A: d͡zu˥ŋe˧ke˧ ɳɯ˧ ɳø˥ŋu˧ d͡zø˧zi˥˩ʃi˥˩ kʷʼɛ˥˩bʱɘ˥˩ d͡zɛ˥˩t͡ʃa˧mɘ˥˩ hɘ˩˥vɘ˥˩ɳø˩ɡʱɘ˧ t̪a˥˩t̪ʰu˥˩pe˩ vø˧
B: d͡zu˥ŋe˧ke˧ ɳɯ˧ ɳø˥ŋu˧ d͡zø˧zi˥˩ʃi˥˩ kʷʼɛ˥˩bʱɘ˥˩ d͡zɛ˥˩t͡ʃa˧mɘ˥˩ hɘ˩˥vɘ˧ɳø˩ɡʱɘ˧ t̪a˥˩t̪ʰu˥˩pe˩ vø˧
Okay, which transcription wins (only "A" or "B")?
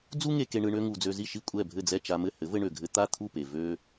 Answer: B